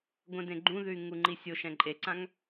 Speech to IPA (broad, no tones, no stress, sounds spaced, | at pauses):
ɡʷ ɛ̃ d ẽ ɡ͡ǃ ũ ð ʉ y̯ ŋ u ŋ͡ǃ i sʲ o ʃ ɛ̃ ǃʼ e ǀ ã ŋ